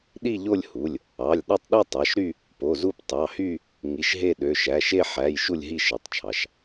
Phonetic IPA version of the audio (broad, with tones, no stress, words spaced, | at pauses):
ɗi˥˧ʎo˥˧lʲhu˩˧˩lʲ | ɑ˩˧˩lʲ ɗɑ˥˧tˤɗi˥˧tˤɑ˩˧˩ʃɾy˥˧ | po˩˧˩zu˥˧p tˤɑ˩˧˩hy˥˧ | ŋi˩˧˩ʃɦe˥˧ɗø˩˧˩ ʃæ˩˧˩ʃe˥˧ ħæ˩˧˩j ʃu˥˧lʲɦi˥˧ʃɯ˩˧˩tˤt͡ʃʰɑ˩˧˩ʃ